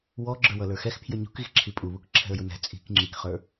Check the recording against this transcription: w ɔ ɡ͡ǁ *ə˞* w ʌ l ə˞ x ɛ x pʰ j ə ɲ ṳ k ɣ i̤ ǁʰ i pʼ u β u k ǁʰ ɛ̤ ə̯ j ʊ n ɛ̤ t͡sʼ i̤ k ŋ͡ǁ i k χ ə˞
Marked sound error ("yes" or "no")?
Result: no